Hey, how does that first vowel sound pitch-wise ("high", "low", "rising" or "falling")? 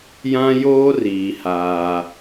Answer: high